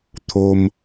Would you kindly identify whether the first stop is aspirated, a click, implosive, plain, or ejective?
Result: aspirated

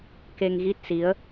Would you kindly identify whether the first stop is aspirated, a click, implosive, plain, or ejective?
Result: plain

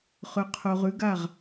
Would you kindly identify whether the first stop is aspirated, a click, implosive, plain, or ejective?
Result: aspirated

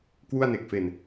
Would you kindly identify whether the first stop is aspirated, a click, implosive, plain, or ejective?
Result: plain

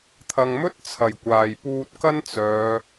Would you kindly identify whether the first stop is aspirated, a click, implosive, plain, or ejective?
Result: aspirated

